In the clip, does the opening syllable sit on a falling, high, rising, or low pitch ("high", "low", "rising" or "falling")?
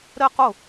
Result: high